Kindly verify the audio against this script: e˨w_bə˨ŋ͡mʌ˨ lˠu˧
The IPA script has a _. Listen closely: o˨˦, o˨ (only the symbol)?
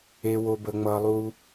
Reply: o˨